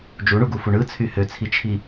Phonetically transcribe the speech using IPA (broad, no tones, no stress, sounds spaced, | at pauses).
d͡ʒ u ɳ u ɡ u f u ɳ ɯ t͡sʰ y h ø t͡sʰ i t͡ʃʰ i